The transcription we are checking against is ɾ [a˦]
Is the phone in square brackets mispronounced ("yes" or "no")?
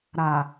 yes